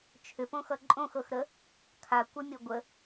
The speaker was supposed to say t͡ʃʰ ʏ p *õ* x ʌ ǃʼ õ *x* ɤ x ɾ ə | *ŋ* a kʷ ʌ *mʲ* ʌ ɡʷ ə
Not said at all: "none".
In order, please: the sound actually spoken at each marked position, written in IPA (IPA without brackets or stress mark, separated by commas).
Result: õ, x, kʰ, mʲ